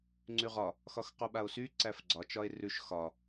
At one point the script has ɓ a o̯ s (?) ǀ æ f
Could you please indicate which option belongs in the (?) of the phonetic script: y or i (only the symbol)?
y